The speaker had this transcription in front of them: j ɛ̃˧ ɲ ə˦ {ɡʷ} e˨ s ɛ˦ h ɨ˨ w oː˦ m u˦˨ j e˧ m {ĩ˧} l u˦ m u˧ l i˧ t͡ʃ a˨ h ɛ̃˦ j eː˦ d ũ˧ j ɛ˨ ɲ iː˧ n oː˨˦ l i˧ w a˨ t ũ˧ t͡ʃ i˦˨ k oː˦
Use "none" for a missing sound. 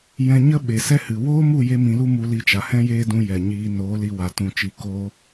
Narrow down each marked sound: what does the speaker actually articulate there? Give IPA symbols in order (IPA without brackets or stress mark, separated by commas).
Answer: ɓ, ĩ˧